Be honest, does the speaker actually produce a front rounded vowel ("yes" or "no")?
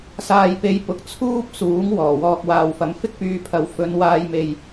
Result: yes